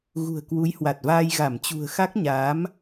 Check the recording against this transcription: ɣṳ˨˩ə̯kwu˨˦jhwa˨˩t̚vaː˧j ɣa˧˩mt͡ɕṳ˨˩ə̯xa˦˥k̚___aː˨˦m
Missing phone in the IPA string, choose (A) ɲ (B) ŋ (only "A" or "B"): A